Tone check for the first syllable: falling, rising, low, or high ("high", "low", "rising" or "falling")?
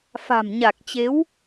low